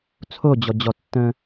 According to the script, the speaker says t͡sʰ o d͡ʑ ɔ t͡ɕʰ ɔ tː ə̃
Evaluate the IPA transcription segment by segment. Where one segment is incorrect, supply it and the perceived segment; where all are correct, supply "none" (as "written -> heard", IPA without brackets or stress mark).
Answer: t͡ɕʰ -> d͡ʑ